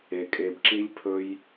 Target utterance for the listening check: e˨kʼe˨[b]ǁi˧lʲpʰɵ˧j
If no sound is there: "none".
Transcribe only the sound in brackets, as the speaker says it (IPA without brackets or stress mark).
b